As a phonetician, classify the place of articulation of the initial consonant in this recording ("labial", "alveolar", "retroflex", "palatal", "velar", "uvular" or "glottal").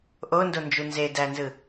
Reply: glottal